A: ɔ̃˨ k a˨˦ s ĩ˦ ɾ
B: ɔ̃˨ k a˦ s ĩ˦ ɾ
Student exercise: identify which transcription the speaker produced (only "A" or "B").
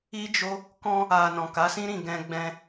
A